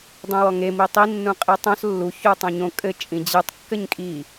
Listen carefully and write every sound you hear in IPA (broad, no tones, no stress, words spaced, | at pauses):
dˤũwɔŋe mitˤi nːũqʼitˤõs lːu çutˤõɲõ kʼɘ t͡ʃʼĩd͡ʑɨtˤ kːɘɲkʼi